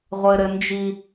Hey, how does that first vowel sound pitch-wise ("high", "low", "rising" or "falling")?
high